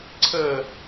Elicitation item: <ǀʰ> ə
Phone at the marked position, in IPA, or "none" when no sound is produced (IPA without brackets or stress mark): ǀʰ